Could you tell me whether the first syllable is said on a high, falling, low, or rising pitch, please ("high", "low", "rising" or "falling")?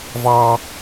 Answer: high